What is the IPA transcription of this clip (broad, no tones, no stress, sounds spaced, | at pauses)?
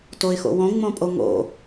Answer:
t o ɪ̯ x o̰ w õ ŋ͡m õ pʼ o ŋ o̰